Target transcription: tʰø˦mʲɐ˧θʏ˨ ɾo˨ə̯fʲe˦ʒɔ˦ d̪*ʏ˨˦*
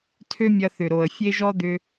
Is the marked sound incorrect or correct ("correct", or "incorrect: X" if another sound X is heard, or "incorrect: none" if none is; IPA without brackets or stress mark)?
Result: incorrect: ʏ˧